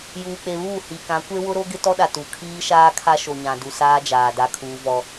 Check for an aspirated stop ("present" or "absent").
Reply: present